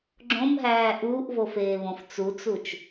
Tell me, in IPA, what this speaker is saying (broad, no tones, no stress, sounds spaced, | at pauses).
ɡ͡ǁ õ m ɦ æː ʔ uː ʔ v o f eː β õ f t͡s u t͡s u t͡ʃ